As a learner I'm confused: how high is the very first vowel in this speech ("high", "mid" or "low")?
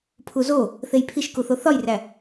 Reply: high